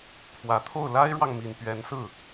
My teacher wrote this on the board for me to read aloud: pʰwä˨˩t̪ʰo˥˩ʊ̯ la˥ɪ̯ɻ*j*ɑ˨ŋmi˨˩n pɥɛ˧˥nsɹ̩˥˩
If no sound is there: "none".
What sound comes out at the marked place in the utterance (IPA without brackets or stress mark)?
w